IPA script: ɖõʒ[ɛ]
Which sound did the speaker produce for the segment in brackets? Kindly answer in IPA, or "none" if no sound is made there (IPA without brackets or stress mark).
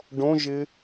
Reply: ɪ